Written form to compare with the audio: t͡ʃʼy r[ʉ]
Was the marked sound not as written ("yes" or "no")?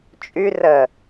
yes